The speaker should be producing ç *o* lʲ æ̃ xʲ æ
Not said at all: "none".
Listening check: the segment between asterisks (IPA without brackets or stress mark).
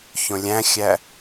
õ